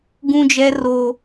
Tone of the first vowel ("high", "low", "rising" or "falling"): high